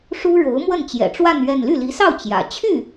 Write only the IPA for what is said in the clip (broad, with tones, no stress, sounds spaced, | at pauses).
ʂ u˥ ɻ o˧˥ ʊ̯ m w ə˥˩ n t͡ɕ j ɛ̰˨˩ ʈ͡ʂ w a˥˧ n ɥ ɛ˥˧ n l y˥˩ l i˧˥ s ɑ˥˩ ʊ̯ t͡ɕ j ä̰˨˩ t͡ɕʰ y˥˩